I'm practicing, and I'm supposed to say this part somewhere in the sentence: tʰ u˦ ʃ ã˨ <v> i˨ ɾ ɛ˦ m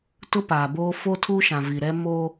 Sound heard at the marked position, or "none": v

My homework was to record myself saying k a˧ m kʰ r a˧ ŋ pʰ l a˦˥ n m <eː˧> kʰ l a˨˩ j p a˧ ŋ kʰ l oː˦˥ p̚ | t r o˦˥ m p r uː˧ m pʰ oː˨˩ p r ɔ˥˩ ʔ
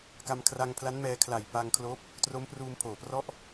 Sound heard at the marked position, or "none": ɛː˧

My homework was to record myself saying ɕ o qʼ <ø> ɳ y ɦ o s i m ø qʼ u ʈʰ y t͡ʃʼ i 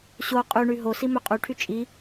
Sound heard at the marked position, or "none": y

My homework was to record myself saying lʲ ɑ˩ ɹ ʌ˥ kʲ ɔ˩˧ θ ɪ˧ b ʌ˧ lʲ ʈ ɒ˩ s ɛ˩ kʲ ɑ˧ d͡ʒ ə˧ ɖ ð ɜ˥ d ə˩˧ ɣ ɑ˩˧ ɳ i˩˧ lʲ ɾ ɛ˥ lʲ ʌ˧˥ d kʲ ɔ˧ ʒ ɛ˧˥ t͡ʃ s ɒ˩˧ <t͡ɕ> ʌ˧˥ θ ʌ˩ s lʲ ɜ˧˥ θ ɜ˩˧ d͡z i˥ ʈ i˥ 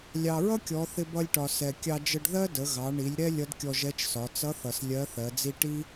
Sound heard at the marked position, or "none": t͡s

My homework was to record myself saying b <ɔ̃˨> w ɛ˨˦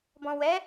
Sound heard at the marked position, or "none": ɔ̃˨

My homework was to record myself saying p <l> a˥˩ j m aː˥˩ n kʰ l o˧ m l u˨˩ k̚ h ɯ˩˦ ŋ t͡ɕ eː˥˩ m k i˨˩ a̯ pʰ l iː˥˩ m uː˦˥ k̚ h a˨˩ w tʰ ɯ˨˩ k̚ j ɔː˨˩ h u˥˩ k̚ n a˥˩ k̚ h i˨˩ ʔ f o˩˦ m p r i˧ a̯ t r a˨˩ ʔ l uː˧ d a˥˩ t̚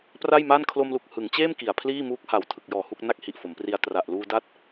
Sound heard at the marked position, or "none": r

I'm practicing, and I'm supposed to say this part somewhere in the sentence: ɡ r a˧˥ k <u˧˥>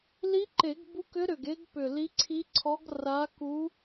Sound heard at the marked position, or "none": u˧˥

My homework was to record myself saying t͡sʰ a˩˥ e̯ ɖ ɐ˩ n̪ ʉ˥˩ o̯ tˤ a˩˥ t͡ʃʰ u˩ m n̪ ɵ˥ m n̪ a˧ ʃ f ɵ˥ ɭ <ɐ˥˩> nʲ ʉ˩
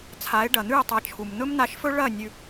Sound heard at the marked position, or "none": ɐ˥˩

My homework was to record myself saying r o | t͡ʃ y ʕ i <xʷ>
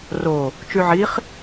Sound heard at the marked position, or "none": χ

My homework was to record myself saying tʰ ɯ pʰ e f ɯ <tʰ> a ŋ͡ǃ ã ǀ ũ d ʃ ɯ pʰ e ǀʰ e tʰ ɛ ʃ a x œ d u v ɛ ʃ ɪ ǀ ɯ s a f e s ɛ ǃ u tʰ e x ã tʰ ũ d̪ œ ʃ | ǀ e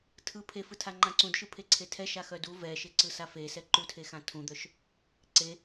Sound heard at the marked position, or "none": tʰ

